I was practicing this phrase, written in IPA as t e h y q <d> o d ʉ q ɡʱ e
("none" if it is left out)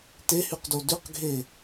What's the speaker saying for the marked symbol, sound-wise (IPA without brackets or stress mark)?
d